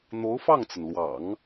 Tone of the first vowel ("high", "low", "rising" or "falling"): rising